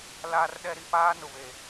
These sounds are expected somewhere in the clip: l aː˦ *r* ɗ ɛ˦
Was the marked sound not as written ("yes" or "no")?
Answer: no